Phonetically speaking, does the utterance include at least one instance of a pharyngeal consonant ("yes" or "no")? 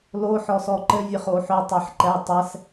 yes